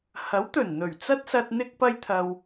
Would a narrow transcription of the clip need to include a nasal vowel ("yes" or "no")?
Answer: no